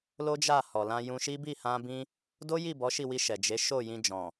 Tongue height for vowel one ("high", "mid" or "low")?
mid